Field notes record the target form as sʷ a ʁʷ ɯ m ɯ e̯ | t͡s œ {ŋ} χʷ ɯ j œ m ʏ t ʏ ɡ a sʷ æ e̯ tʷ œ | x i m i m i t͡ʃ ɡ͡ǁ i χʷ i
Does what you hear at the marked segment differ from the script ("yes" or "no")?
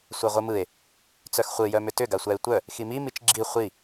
yes